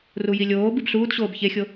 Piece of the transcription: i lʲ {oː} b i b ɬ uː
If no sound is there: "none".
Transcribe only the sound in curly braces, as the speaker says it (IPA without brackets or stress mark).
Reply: oː